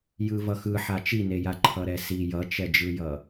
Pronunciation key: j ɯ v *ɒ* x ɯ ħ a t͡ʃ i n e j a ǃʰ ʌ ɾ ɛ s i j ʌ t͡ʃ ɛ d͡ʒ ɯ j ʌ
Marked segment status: incorrect: ʌ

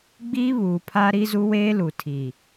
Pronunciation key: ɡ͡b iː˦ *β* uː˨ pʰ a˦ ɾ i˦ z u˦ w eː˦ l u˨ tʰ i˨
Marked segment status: correct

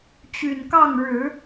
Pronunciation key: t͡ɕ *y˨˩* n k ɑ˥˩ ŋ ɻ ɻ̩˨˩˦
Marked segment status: correct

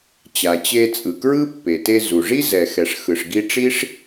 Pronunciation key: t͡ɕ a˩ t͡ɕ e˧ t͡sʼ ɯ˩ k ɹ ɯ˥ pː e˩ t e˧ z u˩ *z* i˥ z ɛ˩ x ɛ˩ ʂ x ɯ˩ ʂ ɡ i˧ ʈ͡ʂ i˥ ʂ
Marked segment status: incorrect: ʐ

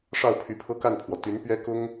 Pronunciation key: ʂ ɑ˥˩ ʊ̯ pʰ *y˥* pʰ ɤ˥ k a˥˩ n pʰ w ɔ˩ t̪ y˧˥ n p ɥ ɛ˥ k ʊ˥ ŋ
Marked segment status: incorrect: y˧˥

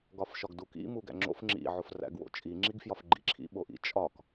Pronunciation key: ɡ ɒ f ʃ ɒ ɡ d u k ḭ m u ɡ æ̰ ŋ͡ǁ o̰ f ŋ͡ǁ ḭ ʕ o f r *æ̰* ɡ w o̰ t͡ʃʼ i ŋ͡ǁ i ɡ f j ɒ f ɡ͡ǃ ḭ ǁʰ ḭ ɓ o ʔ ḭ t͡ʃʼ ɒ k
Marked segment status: correct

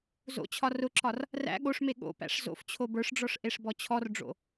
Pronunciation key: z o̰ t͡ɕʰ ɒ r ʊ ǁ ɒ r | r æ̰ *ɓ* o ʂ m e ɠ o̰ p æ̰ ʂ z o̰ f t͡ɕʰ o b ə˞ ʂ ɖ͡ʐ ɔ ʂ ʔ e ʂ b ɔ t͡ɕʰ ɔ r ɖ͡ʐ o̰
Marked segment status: incorrect: ɠ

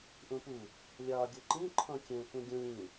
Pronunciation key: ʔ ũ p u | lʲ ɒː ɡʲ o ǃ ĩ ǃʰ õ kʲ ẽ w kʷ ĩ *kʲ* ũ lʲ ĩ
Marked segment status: incorrect: ɡʲ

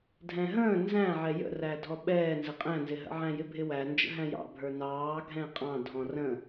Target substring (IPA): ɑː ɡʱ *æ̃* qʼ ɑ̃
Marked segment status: incorrect: ɛ̃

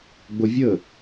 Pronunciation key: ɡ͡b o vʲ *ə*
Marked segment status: correct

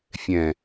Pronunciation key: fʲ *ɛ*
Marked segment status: incorrect: ɛ̃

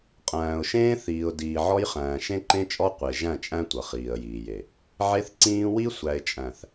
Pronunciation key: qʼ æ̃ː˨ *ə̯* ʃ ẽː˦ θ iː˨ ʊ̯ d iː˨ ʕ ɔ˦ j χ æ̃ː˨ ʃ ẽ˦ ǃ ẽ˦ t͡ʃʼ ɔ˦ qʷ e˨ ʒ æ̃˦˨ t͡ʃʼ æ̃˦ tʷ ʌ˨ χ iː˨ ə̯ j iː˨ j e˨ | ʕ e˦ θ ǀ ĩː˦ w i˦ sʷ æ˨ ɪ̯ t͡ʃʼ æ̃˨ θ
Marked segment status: incorrect: ʊ̯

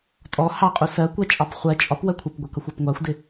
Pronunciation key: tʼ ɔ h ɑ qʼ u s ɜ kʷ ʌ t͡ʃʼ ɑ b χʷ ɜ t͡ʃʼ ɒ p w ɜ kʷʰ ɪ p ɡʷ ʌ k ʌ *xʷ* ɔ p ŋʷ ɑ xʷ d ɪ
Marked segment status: correct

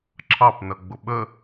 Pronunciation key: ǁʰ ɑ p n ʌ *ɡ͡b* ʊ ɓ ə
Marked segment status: correct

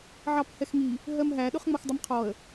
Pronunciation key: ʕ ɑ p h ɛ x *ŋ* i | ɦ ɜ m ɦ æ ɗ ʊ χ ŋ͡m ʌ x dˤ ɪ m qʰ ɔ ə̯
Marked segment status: correct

